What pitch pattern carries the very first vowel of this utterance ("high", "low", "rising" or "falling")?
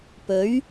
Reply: rising